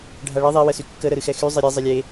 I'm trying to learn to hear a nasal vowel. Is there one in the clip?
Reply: no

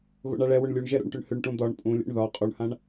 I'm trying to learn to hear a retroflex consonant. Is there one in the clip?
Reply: yes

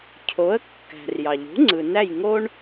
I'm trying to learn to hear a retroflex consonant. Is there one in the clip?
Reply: yes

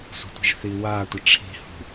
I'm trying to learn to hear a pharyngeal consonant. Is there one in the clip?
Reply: no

